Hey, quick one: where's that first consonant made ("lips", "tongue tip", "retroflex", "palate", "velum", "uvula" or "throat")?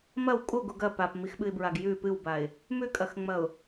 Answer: lips